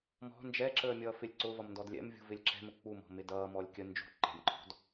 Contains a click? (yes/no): yes